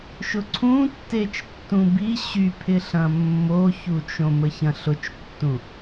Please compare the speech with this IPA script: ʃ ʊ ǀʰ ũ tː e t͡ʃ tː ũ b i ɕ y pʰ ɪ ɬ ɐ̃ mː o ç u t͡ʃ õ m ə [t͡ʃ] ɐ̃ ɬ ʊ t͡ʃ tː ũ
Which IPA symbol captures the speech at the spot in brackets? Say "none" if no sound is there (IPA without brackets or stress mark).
ç